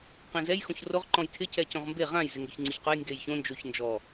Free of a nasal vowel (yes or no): no